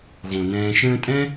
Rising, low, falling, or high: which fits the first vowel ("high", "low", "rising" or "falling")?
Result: low